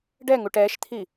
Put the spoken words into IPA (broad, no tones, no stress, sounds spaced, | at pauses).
ɖ ɛ ŋ u ʈ ɛ ʃ t̪ʰ i